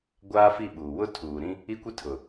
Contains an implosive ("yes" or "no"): yes